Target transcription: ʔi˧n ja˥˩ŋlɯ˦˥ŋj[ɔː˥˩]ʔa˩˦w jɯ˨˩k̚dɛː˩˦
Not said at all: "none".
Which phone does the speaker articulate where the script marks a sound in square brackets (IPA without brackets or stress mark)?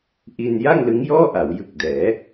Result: ɔː˥˩